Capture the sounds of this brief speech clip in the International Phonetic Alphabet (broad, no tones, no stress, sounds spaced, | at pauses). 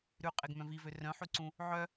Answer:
ɾ ʉ qʼ e ɡ m œ̃ v i v ø r œ̃ ħ ʉ ǀ ũ | ʕ œ